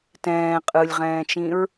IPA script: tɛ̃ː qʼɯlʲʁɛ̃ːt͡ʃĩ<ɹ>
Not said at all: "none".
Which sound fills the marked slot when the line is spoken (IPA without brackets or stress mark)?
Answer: ɹ